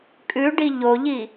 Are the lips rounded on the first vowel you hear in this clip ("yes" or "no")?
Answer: yes